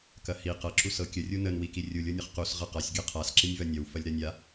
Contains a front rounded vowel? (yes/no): no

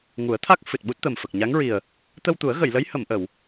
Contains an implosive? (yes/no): yes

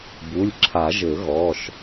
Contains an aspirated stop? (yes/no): yes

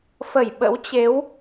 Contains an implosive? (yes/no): yes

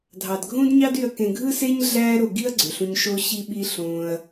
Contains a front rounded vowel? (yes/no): yes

